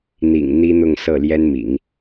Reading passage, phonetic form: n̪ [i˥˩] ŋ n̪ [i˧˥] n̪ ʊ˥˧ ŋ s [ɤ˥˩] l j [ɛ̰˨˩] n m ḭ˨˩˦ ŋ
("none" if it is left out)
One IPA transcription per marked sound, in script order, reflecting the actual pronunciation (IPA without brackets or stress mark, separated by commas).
ḭ˨˩, i˥, ɤ˥˩, ɛ˥